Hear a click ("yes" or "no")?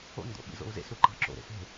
yes